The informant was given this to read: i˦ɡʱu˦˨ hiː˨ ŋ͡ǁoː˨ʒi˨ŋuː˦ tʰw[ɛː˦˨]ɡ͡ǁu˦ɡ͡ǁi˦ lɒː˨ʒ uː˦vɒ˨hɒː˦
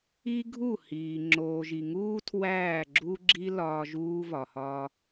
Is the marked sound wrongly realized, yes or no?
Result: yes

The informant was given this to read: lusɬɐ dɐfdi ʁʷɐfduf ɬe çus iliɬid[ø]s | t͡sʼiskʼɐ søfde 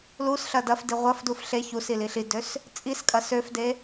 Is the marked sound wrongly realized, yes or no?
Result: no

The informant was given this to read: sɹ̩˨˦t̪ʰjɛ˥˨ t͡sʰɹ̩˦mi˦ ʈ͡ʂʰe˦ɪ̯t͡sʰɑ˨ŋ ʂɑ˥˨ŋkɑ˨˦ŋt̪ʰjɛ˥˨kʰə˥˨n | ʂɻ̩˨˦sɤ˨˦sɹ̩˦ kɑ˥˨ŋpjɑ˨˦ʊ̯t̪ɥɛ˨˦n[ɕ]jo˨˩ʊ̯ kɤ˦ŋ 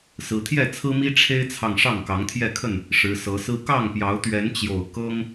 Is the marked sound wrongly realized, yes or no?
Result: yes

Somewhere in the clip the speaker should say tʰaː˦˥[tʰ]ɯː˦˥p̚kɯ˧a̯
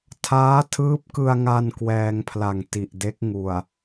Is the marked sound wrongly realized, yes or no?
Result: no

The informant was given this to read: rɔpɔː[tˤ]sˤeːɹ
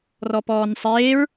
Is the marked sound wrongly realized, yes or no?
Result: yes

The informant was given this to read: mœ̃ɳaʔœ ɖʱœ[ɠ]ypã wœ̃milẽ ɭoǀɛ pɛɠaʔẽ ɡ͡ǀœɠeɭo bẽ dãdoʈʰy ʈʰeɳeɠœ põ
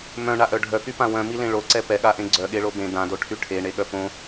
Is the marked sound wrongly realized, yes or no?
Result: yes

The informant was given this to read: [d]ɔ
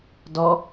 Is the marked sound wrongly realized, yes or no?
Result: no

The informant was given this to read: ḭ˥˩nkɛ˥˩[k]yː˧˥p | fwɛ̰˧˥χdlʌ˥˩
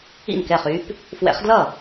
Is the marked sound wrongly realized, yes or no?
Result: yes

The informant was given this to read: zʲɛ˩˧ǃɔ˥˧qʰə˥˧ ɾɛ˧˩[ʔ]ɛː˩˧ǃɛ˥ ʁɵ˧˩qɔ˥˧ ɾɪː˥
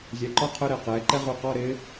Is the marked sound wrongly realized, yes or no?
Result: yes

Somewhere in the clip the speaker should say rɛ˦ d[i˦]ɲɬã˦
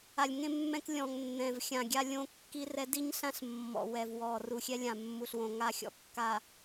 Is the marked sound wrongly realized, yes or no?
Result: no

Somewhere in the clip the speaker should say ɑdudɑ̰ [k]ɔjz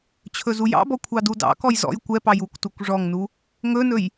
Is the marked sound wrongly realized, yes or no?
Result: no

